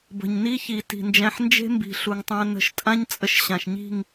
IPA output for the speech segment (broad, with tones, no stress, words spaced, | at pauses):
bə̤˨ɲni˦çi˨ ti̤˨nd͡ʒæ̃˧ħnd͡ʒe̤˦ mbi̤˨ ɬu˨ŋtˤæ̃˧ nə̤˧ʃtʼã˦ɲ t͡sʼə˧ʃɕã˨ʃɲi̤˦˨ŋ